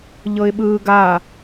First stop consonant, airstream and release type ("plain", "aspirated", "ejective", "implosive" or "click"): implosive